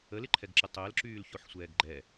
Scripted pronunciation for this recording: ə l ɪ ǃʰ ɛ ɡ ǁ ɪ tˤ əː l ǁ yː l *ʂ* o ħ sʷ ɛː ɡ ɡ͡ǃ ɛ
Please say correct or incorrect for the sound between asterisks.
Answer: incorrect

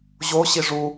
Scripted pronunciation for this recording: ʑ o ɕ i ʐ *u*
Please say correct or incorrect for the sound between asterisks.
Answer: correct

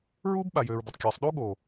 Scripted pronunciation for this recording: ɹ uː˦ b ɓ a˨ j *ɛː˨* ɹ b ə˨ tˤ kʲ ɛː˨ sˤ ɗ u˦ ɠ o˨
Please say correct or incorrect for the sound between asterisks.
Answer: incorrect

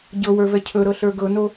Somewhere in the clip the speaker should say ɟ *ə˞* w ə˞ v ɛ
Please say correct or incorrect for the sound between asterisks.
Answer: incorrect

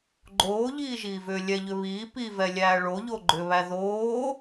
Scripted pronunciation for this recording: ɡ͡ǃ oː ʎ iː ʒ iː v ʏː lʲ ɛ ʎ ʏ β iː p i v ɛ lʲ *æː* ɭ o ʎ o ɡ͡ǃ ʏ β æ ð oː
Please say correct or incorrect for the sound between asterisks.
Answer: correct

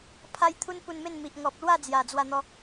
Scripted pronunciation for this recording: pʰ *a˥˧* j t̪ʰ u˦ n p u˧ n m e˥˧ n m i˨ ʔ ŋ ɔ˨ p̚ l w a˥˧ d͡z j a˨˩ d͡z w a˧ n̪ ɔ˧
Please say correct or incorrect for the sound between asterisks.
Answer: incorrect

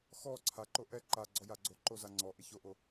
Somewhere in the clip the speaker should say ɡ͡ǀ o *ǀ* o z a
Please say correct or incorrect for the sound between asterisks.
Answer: incorrect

